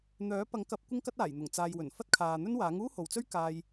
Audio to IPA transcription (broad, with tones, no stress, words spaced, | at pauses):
n̪œː˨˥pɐ˨˥ŋkɐ˨˥p̚ kʷɪ˥ŋkɐ˥t̚aː˨˩jn̪ʊ˨˩ŋ t͡saː˨jwɵ˨˩n fɐ˥t̚kʰaː˨n̪ɵ˥nwaː˨˥ŋ uː˥ho˨wt͡sɵ˥ɥkaː˧j